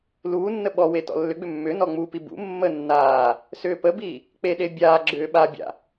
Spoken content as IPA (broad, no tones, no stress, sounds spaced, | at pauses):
l uː nː ə ɓ ɔ w e t ɔ̰ lː ʏ ɡ͡b ʏ mː ʏ n ɔ ŋ͡m u p i b ṵ mː ə nː aː | s ʏː p ə b i | k͡p e ɗ e bʲ aː ɡ͡ǁ ʏː ɓ a bʲ a̰